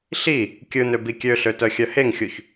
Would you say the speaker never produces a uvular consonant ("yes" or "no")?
yes